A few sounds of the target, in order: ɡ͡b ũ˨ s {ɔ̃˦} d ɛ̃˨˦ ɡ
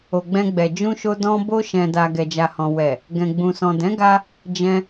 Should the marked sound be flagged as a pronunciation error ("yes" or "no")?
yes